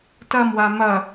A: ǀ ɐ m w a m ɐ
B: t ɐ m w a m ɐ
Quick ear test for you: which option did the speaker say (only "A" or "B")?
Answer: B